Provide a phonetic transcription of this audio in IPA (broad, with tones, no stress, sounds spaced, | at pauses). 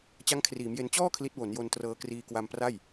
t͡ɕ a˦˥ ŋ kʰ r iː˩˦ m j e˧ n t͡ɕ ɔː˥˩ kʰ l i˦˥ t̚ w o˩˦ n j o˧ n t r ɤː˧ k r iː˧ k w a˧ m p r a˥˩ j